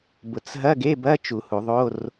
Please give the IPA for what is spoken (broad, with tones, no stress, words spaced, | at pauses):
bʊ˧t͡s ɦɐ˧˥˧ɡe˧˥˧bɐ˧˥˧ t͡ʃu˨˩˦hu˨˩˦ðˤo˧˥˧r